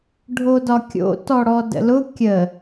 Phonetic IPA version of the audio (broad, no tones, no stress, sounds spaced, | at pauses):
ɖʱ o d ɒ kʲ o̰ t ɔ ɽ ɔ d ə̰ l ʊ kʲ ə